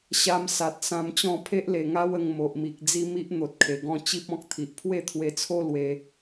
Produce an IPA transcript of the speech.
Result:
ɕ a˧ m s a˨ t̚ s ã˧ m t͡ɕ ɔ̃˥˧ pʰ e˦ ʔ l e˨˩ ŋ a˦ w ə˧ ŋ m o˨ ʔ m i˨ k̚ d͡z i˧ m i˦ ʔ n̪ o˨ t̚ kʰ e˨˩ ɡ ɔ̃˧ t͡ɕ i˦ p̚ ɔ̃˦ k̚ t̪ʰ i˨ ʔ pʰ w e˥˧ t̪ʰ w e˧ t͡sʰ o˦ l w e˧

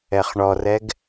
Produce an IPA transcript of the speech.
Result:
ɛ χ ɳ ɔ r ɛ ɡ

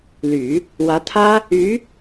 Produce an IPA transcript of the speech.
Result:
l y˨˩˦ | w ä˧˥ t̪ʰ ä˥ | y˧˥

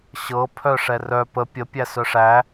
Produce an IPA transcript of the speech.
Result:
ɕ ɤ pʰ œ ʂ ɛ r œ p ə pʲ ə pʲ æ s œ ʂ æ

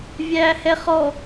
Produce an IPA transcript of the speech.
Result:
vʲ æː h ɛ χ ɔ

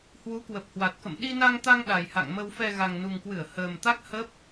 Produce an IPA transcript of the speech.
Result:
h w u˨˦ k w ə˨˩ p̚ h w a˨˩ t̚ k ə̰˧˨ m ɗ i˧ n a˧ ŋ t̪ a˧ ŋ ɗ a˨˩ j h a̰˧˨ ŋ m ə˨˩ w f ɛ˨˩ ɣ a˨˩ ŋ n u˨˩ ŋ k w ɨ˧˩ ə̯ h əː˨˩ m t̪ a˦˥ k̚ h ə˦˥ p̚

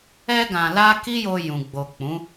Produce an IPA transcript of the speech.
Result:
ɛ˧ ɡ ã˨ l a˧ k i˦ j o˧ j ũ˨ ɡ͡b o˨ k͡p ũ˨˦

